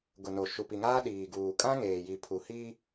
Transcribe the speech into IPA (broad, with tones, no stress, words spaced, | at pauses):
ɡʊ˨no˨ ʃu˨pi˨ŋaː˦ ɗiː˨ɡuː˨ kʼã˦ŋeː˨ji˨pʰu˨ hiː˦